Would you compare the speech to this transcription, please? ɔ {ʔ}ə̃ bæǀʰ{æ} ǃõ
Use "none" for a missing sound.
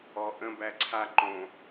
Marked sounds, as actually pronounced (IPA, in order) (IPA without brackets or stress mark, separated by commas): ʔ, a